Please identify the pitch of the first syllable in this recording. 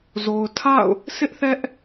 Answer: low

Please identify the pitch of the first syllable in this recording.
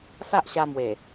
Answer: high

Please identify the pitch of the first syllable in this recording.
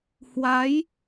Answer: rising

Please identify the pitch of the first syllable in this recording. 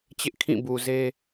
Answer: high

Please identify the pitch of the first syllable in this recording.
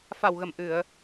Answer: low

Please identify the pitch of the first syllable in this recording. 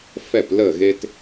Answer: falling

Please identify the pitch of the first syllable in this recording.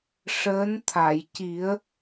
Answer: rising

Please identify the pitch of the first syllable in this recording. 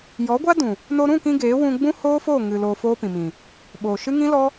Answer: rising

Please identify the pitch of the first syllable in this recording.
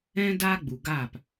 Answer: high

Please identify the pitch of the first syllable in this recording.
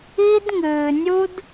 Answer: high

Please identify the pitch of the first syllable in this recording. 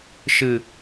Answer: low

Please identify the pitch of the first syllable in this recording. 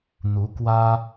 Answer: rising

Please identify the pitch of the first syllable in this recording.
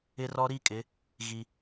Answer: high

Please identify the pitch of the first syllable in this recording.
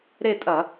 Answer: falling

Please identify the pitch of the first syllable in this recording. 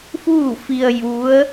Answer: falling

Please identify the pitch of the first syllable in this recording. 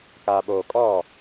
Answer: low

